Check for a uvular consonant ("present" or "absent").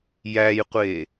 present